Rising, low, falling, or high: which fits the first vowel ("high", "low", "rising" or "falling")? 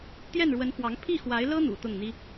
falling